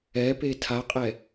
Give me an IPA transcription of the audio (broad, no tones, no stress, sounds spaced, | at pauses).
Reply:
ɛ p e tʰ a qʼ ɛ